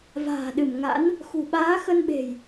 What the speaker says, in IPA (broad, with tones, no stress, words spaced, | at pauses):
va̤ː˨˩ɗɨ˧˩mŋa̰˧˥n | xṳ˨˩ɓaː˨˦xə˧nɓe̤˨˩j